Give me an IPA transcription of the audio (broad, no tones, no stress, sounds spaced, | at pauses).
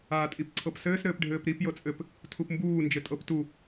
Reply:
aː tʼ i p ǀʰ ɤ p s ɘː s ɾ ɘː p ɖʱ ɘː p ɾ i p j ɤ t͡sʼ ɘ p | tʰ u p m b uː n d͡ʒ ɘ tʼ ɤ p t u